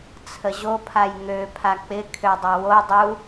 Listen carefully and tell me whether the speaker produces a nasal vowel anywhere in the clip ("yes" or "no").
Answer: no